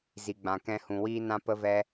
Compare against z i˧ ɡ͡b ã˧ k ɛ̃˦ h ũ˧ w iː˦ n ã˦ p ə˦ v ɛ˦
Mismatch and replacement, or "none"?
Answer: none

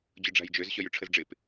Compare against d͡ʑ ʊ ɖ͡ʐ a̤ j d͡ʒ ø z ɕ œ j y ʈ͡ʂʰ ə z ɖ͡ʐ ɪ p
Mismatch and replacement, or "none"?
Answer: none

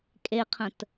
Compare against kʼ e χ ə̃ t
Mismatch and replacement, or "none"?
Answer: χ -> qʰ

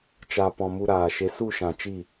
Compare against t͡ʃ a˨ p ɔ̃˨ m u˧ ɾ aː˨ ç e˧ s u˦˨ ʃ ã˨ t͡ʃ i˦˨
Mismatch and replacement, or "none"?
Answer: ç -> ʃ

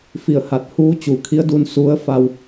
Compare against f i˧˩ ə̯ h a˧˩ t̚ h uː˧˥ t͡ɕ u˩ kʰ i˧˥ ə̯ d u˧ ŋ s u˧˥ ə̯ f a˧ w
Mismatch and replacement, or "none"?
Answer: ŋ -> n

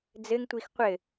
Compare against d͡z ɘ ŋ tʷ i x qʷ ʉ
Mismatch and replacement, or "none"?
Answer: ʉ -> ɘ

